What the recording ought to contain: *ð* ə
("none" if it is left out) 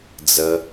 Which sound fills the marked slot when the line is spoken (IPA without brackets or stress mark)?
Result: d͡z